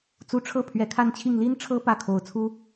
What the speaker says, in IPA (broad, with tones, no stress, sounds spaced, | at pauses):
t͡s u˧˥ ʈ͡ʂʰ ɤ˥˩ pʰ ɥ ɛ˧˥ kʰ a˥˧ n t͡ɕʰ i˥˩ ŋ l i˥ n ʈ͡ʂʰ ɤ˥ p ä˥˩ kʰ o˧˥ ʊ̯ t͡sʰ u˥